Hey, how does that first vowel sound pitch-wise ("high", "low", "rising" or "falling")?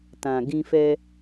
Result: low